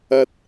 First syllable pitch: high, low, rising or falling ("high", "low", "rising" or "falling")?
high